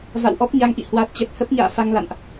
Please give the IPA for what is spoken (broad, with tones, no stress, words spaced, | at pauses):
va̰˧˨wʔɔ˦˥p̚ɲa˨˦ŋʔḭ˧˨ hwa˨˩t̚t͡ɕɛ˨˩t̚ hə˦˥p̚ɲa̰ː˧˨ fa˧ŋla̰˧˨nʔ